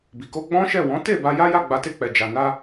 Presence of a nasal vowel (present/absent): present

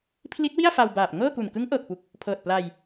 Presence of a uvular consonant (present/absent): absent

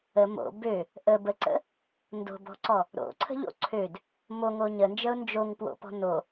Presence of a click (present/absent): present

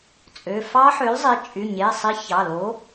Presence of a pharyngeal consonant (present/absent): present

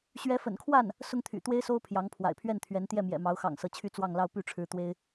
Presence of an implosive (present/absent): absent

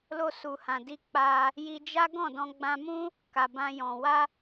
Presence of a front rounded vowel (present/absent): absent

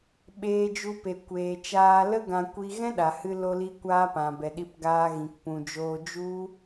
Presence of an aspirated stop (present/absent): absent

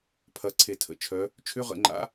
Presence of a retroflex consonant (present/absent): absent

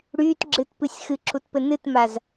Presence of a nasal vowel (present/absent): absent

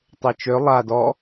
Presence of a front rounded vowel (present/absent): present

